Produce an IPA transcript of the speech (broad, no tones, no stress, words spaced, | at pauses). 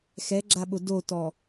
xɛɡ͡ǁaɓʊ dotɔ